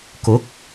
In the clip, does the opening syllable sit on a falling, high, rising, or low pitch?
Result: rising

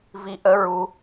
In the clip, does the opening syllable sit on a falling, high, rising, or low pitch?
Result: rising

